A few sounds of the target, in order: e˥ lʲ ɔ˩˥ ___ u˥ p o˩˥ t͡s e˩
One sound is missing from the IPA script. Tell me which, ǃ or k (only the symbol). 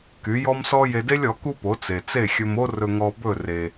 k